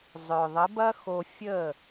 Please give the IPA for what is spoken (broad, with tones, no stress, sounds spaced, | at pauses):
zˤ œ˨ ðˤ ə˨˦ b ɐ˦ x o˧ fʲ ə˦˨